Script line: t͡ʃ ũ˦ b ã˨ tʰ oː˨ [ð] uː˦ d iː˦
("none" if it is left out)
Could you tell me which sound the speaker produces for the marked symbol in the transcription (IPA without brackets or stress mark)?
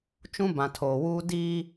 w